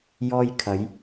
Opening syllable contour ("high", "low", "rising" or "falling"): high